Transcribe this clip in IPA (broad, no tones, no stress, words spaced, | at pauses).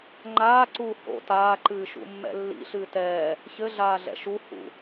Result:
ŋ͡ǃaːǀuː ho̰ taːǃɨːʃṵmːɛ̰ lːḭɬɨː tɛː | çɘɮaːɮɛ̰ ʃu hṵ